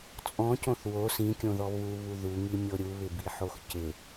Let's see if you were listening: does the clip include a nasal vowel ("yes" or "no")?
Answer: yes